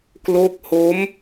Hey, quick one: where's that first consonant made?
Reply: velum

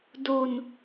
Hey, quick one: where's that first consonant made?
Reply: tongue tip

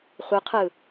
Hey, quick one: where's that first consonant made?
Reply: uvula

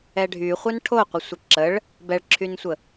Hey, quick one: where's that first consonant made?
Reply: retroflex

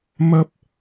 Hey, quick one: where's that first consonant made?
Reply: lips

